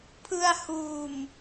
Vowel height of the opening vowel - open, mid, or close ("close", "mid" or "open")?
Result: close